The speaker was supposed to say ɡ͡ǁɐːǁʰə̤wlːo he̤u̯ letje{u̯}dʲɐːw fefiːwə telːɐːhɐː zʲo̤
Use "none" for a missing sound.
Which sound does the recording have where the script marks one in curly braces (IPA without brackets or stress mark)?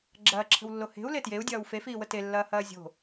u̯